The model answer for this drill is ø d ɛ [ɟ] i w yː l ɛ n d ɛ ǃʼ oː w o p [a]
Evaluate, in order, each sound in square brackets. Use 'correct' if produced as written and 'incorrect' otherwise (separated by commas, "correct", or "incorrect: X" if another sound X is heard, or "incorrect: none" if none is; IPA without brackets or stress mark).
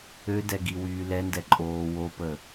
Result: incorrect: ɡ, incorrect: ə